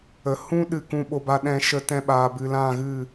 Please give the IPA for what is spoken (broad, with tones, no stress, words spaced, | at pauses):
ə˨ hũ˧ ɗɨ˦˨kũ˦ ɓo˧ba˧ɗɛ̃˧ ʃə˧tɛ̃˧ ɓaː˨bɨ˨lã˦˨ɣɨ˦˨